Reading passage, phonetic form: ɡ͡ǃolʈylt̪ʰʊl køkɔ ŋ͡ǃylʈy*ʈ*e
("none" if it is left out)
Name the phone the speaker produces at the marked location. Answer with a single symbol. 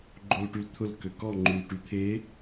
t̪ʰ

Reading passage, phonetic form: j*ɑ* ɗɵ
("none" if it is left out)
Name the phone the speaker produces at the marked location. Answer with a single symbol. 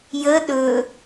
ə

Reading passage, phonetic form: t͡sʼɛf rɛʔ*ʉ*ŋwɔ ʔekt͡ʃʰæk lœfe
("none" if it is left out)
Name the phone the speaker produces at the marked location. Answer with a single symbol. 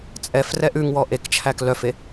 ʉ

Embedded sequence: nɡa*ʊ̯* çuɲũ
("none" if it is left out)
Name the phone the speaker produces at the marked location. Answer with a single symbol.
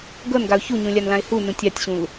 ʊ̯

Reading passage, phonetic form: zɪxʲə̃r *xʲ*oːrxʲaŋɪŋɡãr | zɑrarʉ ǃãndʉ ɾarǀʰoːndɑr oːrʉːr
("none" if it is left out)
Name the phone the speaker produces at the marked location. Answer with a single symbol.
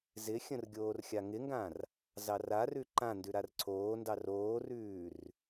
ɡʲ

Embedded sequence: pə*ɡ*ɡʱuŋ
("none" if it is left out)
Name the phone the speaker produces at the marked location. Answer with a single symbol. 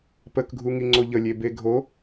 k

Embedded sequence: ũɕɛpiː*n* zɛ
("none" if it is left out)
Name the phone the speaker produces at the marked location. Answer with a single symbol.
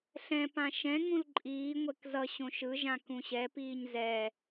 ɲ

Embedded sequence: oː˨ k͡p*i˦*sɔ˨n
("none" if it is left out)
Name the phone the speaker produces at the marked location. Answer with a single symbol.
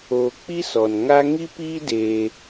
i˦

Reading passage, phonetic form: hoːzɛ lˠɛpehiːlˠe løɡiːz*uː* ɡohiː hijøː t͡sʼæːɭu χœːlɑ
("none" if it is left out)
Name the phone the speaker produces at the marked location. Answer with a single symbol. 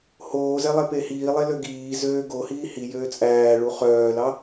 øː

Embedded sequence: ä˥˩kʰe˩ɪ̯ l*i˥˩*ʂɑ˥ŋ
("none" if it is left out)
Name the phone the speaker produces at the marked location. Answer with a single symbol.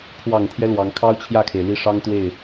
i˥˩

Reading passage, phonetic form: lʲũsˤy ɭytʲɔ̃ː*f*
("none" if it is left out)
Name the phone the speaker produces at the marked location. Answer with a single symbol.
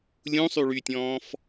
f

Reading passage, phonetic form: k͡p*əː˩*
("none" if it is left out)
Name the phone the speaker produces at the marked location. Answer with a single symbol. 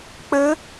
əː˦˥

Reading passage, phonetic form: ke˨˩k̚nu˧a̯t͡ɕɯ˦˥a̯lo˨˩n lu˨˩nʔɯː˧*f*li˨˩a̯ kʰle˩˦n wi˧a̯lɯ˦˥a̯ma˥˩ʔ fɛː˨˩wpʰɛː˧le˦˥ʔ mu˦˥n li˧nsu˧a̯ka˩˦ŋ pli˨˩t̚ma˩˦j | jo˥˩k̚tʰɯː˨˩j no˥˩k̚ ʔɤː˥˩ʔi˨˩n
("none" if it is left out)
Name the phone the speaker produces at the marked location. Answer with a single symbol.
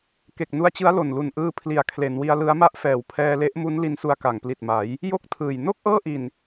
pʰ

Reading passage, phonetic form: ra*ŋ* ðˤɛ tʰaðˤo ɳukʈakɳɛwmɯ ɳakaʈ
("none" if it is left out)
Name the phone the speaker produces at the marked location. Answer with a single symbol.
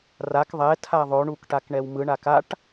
k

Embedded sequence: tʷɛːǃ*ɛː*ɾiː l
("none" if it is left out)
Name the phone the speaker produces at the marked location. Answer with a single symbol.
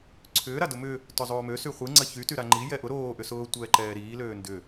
ɛː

